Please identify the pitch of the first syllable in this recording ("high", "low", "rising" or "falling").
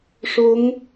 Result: rising